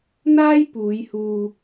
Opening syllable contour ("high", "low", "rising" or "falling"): high